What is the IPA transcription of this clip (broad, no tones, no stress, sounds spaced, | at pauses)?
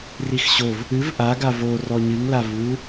r i x ɕ o v | ɨ v ʔ a ɡ a v o r ɔ ɲ ɨ ŋ l a v u